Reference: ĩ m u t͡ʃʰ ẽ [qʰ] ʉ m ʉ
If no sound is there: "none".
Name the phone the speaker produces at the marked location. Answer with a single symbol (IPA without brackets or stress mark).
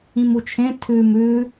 tʰ